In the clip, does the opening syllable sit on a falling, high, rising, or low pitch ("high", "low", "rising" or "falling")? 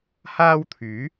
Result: high